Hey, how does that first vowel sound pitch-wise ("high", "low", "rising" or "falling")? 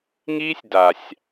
high